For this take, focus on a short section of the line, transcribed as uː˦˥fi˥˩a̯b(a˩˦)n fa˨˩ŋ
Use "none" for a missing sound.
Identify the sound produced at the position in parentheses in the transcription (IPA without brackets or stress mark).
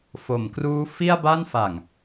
a˥˩